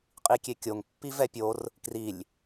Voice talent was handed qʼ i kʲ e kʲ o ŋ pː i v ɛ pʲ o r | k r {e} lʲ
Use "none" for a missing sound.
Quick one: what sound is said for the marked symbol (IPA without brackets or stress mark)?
i